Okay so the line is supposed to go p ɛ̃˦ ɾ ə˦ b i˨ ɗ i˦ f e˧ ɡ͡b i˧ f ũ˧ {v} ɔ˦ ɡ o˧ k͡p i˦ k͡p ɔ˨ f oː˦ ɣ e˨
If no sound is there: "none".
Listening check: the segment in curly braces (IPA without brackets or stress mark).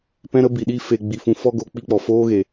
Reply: f